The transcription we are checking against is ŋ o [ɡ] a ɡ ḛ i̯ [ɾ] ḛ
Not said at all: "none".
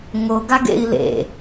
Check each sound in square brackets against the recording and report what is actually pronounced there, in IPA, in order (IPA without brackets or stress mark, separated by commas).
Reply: ɡ, l